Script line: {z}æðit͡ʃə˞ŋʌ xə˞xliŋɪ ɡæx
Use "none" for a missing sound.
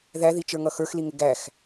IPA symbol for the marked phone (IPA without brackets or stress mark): ð